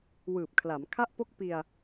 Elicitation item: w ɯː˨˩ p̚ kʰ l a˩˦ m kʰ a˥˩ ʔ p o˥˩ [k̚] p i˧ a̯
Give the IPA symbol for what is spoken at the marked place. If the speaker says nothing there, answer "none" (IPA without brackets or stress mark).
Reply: k̚